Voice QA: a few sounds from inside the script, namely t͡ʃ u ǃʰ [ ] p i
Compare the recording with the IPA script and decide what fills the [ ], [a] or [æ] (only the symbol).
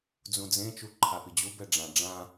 a